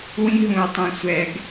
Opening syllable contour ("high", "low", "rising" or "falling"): high